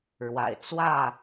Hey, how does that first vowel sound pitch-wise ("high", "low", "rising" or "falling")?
low